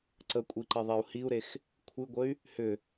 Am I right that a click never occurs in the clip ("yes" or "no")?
no